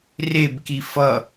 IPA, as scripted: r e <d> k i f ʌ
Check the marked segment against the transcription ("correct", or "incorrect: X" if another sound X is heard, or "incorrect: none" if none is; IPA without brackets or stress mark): incorrect: b